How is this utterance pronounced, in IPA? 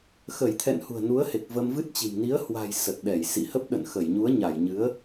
x ə˧˩ j t̪ʰ ɛ̰˧˨ n h ṳ˨˩ ə̯ n u˨˦ ə̯ h e˨˩ k̚ v ə˧ m v ɨ˦˥ t̚ t͡ɕ i̤˨˩ m n i˨˦ ə̯ h w a̤˨˩ j s ə˨˩ t̚ ɗ ɛ˧˩ j s ḭ˧˨ h ə˦˥ p̚ ɗ ə̰˧˨ n x ə˧˩ j ɲ u˨˦ ə̯ ɲ a˧˩ j ɲ ɨ˨˦ ə̯

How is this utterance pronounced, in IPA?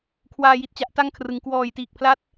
kʰ w aː˧ j i˨˩ t̚ t͡ɕ a˦˥ ʔ t a˥˩ ŋ kʰ r ɯ˩˦ ŋ k w ɔː˨˩ j t iː˨˩ k̚ pʰ l a˦˥ t̚

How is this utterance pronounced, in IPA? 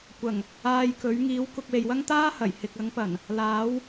kʷ ɐ˨˩ ŋ | aː˧ j k ɵ˨˥ ɥ ŋ iː˨˥ w k ʊ˧ k̚ w e˨ j w ɐ˥ ŋ t̪ aː˥ h ɐ˨˩ j h ɪ˨ k̚ ɐ˨˥ ŋ p ɐ˨˩ n | l aː˨˥ w

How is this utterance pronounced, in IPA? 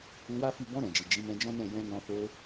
u˧ w a˦ f i˦˨ b ɔ̃˧ ɾ ɛ̃˨ d͡ʒ i˨ d͡ʒ i˨˦ m ɛ̃˧ d͡ʒ ɔ̃˦ n ɛ̃˦˨ j ɛ̃˧ n ɔ̃˧ f o˧

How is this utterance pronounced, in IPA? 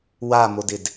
w a m o d ɪ d

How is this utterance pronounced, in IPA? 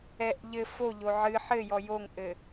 ɛ ʔ ʎ ɘ f o ʎ o ʕ ɨ ħ ɘ j ɔ j o ŋ ʔ ɘ

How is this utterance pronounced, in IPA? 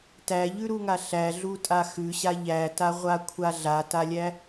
t æ ʎ ʉ ɾ u ŋ a ɬ æ ɮ u tʼ a x ʉ ɕ a ʎ æ t a ʁʷ a kʷʰ a ɮ a t a lʲ æ

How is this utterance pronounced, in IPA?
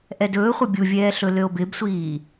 ʔ ɛ d ɵː χʷ ʌ bʲ u vʲ ɛː ɬ ɵ l ø o̯ b ɪ b sʷ iː

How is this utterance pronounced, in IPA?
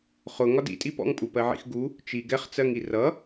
χ ʊ ŋ ɒ d ḭ tʼ i p ɔ̰ ŋ pʼ u p ɜ ʕ ḭ x ɡ u | t͡ʃ i ɡ ɛ χ t͡s ɜ ŋ i r ʌ

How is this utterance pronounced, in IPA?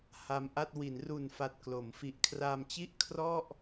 h a˧ m ʔ a˥˩ t̚ w i˩˦ n r u˨˩ n f a˨˩ t̚ k l o˩˦ m f i˨˩ ʔ kʰ r a˧ m t͡ɕ i˥˩ ʔ kʰ r ɔ˥˩ ʔ

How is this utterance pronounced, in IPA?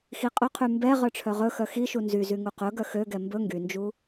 x i qʼ ɵ qʰ y m b ɛ ʁ œ ʈ͡ʂʰ œ ʁ ɵ x œ x i ʃ u n z y z y ŋ u q ɵ ɡ œ x ø ɡ ɛ m b ɵ ŋ ɡ y n d͡ʒ u

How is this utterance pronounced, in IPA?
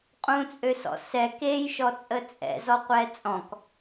qʼ ũ t͡sʼ ø s ɔ̰ s ɛ k e j ʃ ɔ t͡sʼ ə t͡sʼ ɛ̰ z ɔ qʷ ɛ t͡sʼ ɔ̃ k

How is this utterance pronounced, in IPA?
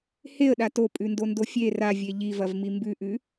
h e ə̯ ɗ a t o pʼ ʉ n d o n d o fʲ e r a vʲ e ʎ i v ɐ v m i m b ʉ ʔ ʉ

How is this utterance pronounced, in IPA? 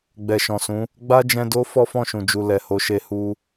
ɡ͡b ɛ˨ ʃ ɔ̃˨ s ũ˨˦ | ɡ͡b a˦ d͡ʒ ɛ̃˧ d o˦ f ɔ˦ f ɔ̃˦˨ ʃ ũ˨ d͡ʒ u˨ l ɛ˨ h o˧ ʃ e˧ h u˦

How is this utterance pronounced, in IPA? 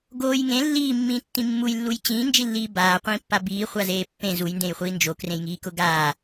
ɡ oː j ŋ ẽ lː iː mː ĩː tː ĩ mː u j lː u j t͡ɕ ĩː n d͡ʒ i lː iː b aː qʷ ĩː pː a b iː χʷ a z eː pː ẽ z u j n d ẽ j χʷ iː n d͡ʒ o k r ẽ j ŋ iː k ʊ ɡ aː

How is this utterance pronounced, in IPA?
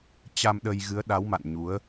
t͡ɕ a˧ m ɗ ə˧ j ɣ ɨ˨˦ ə̯ ɗ a˨˦ w m a̰˧˨ n ɲ u˨˦ ə̯

